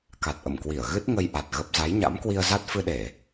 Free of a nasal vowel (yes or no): yes